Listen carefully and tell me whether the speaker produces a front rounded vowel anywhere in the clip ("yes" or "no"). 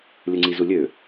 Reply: yes